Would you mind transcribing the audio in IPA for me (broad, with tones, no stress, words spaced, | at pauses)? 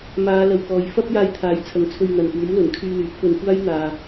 maː˨˧ lɐ˨wkɔː˨j fɐ˥p̚jaː˧jt̪ʰaː˨˥jt͡sʰɐ˨ŋ t͡sʰɵ˧ɥn̪ɐ˨npuː˨˥mlɵ˨˩n kʰyː˧lyː˨˥p̚fɵ˧n kʷaː˥jn̪aː˨